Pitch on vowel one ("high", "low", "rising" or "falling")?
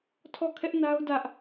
falling